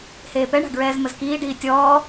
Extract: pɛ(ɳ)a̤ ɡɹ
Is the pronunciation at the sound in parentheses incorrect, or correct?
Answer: correct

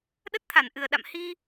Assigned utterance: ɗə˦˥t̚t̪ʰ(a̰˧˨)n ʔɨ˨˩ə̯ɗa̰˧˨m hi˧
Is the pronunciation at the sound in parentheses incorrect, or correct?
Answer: incorrect: a˧˩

